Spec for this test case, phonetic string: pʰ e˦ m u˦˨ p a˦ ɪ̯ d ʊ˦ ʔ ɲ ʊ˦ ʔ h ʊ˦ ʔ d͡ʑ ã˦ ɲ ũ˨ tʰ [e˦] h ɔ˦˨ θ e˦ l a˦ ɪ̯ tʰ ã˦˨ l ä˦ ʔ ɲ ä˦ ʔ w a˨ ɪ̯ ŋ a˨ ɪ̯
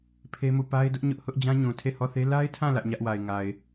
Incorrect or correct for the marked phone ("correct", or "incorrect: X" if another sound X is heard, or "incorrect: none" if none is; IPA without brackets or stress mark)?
incorrect: e˦˨